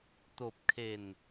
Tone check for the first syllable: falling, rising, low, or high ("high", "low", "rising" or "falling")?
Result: low